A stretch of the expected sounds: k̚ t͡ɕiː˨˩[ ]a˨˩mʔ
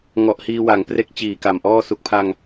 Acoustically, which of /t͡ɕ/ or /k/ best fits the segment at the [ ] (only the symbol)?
k